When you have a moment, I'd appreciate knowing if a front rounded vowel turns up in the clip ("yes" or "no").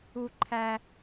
no